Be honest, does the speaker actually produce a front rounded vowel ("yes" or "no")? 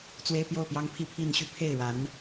yes